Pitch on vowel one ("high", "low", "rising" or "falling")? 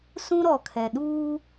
high